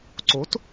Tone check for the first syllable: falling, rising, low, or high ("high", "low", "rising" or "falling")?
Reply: rising